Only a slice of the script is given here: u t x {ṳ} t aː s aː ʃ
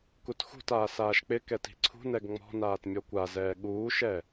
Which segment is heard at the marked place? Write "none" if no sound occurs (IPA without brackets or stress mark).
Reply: ṳ